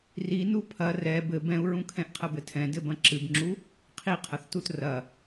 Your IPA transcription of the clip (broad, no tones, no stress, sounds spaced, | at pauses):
r i n u pʰ ɐ r ɛ b ɘ b ɛ̃ u̯ ɹ ũ kʰ ɛ̃ ʔ qʰ ɐ b ɘ tʰ ɛ̃ d ɘ b ɐ̃ ǁ ɨ b ŋ͡ǁ u | qʰ i qʰ ɐ θ t u t r ɐ